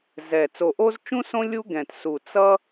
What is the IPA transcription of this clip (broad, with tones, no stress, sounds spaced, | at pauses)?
z ɛ˨˩ t͡s o˨˩ ʔ o˦ z t͡ʃ ũ˦ s õ˦ lʲ u˦ ɡ ɛ̃˨˩ t s u˨˩ t͡s ʌ˦